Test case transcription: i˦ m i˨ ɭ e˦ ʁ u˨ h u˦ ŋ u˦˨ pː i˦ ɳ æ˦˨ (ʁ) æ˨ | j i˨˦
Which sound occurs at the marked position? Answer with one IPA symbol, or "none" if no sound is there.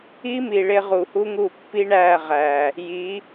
ʁ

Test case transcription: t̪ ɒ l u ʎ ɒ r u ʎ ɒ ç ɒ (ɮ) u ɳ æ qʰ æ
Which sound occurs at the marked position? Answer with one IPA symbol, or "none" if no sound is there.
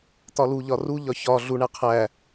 ɮ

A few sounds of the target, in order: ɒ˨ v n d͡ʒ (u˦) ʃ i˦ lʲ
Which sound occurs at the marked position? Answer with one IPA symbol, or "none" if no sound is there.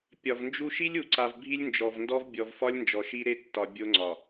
u˦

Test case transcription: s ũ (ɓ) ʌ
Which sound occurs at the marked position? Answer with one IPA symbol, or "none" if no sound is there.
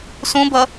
b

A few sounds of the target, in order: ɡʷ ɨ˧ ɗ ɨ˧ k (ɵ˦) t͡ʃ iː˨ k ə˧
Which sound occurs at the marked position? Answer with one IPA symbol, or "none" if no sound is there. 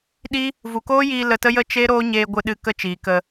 ə˦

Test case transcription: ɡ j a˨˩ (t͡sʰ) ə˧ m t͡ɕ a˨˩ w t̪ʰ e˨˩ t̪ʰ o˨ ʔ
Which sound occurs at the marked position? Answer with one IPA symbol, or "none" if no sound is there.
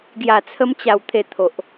t͡sʰ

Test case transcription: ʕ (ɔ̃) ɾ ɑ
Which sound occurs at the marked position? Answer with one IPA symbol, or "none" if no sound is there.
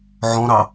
ɔ̃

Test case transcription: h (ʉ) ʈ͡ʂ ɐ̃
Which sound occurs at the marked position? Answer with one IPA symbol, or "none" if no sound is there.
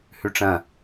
ʉ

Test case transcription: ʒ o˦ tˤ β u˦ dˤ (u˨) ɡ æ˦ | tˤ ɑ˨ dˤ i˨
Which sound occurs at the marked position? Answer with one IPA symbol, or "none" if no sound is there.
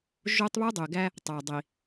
ø˨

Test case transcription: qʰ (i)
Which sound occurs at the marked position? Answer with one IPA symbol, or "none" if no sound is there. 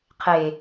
e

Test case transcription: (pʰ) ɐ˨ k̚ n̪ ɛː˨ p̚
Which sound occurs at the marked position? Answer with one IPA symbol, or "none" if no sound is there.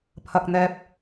pʰ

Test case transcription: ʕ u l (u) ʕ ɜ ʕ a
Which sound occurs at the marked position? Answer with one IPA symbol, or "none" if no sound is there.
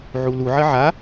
u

